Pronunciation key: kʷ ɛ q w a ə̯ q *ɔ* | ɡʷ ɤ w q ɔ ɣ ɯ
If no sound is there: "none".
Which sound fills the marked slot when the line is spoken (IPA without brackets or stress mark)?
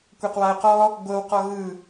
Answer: ɔ